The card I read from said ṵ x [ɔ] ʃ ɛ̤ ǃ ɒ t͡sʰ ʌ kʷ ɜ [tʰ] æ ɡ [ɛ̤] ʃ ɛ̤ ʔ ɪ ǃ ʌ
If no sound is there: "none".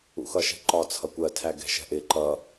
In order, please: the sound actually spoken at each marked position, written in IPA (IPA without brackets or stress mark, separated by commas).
ʌ, tʰ, ɛ̤